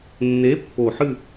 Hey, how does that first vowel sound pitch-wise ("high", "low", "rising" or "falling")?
rising